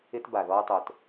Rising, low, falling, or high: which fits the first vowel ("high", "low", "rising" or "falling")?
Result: high